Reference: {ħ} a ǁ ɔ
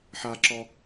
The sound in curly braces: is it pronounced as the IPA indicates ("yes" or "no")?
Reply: yes